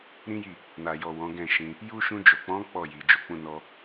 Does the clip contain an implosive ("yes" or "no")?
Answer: no